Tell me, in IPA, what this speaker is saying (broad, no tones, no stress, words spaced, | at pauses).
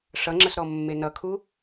ʂʌŋ͡ǁəs ɾɔmːenʌ kʰu